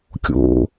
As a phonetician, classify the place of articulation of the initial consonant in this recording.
velar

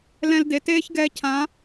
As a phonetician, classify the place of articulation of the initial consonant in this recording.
alveolar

